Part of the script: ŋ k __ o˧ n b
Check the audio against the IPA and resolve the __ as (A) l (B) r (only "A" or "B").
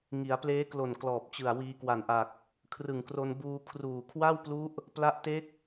B